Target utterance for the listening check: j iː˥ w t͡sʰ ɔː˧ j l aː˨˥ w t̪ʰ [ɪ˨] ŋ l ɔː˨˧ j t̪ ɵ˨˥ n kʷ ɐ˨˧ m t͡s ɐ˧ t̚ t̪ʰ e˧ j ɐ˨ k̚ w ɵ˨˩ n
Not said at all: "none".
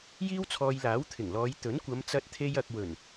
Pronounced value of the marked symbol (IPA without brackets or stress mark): ɪ˨˩